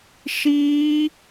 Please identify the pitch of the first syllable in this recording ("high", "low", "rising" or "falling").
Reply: high